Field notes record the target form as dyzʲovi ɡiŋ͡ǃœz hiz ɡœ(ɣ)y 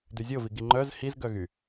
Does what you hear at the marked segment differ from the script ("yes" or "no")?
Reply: no